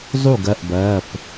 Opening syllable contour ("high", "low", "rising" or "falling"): falling